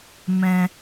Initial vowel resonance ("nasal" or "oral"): nasal